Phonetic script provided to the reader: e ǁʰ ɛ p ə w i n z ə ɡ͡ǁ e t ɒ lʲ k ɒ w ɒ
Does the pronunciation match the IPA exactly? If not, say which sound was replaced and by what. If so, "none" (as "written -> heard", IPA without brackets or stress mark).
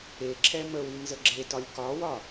p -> m